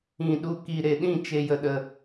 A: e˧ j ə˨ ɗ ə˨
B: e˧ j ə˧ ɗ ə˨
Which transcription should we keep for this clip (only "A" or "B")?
B